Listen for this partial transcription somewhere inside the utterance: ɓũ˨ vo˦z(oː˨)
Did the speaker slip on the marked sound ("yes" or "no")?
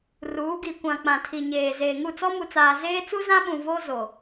yes